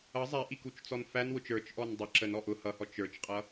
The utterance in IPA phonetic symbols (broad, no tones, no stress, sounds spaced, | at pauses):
ʌ zˤ æ ʔ i k u t͡ʃ t͡s ɔ n f æ n w ʊ t͡ʃ ə˞ t͡ʃ ʔ ɔ n dˤ ə ǁ ə n ɔ ʔ ʊ h ʌ h ɔ t͡ʃ ə˞ t͡ʃ qʼ ʌ